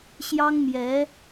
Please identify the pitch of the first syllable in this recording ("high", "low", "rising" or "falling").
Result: high